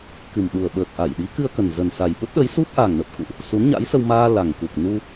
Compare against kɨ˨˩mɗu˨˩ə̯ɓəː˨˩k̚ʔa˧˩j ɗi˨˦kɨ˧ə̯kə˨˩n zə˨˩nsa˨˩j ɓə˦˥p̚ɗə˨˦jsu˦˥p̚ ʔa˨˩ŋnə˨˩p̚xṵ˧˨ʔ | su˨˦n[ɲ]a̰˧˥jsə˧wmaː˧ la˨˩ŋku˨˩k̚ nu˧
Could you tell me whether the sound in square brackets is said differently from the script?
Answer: no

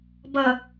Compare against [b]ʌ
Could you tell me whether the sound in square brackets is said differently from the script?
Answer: no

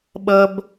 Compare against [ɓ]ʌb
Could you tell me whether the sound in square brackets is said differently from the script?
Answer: no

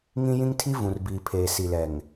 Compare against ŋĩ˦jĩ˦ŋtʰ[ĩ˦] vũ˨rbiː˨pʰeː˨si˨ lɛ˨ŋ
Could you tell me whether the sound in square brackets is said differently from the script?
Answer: yes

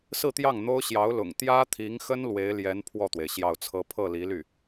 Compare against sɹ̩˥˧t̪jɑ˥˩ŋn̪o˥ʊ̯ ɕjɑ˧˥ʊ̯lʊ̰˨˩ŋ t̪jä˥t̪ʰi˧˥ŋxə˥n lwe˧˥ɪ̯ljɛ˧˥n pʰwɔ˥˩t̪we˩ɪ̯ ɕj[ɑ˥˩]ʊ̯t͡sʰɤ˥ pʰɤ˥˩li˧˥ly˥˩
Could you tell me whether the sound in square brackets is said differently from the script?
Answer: no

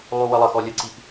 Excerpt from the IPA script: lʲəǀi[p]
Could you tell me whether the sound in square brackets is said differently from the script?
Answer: no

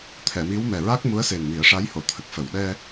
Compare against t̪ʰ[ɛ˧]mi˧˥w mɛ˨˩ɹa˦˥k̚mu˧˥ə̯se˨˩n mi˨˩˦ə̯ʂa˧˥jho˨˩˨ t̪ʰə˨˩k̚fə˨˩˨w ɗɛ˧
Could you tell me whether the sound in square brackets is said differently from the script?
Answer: yes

